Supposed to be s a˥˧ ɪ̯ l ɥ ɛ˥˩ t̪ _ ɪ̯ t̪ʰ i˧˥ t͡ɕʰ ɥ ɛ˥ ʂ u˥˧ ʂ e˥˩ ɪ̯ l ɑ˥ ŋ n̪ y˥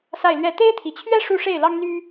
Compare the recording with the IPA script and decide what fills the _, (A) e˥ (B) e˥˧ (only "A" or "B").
A